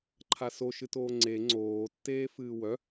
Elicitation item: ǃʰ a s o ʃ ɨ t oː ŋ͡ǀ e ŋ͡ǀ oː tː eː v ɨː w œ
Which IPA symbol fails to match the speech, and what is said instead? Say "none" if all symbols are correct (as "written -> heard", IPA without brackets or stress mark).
v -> f